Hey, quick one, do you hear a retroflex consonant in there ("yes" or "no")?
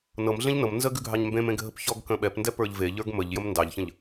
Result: no